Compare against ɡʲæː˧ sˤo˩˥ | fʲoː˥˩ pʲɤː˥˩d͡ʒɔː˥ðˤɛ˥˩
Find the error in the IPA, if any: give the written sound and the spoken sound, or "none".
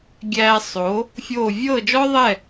pʲ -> vʲ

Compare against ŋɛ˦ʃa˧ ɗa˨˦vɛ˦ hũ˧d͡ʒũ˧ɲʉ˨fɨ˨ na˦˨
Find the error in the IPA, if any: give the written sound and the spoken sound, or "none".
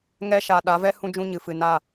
ʉ˨ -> ɨ˨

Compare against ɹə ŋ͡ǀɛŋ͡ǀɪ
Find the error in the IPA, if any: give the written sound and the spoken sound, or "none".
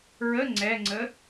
ɪ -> ə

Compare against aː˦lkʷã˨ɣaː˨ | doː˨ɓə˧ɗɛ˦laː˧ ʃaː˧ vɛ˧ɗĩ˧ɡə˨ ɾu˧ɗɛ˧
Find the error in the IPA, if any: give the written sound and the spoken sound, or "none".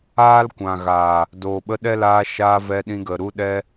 none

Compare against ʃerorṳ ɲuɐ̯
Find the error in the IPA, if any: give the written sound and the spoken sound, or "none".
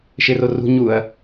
none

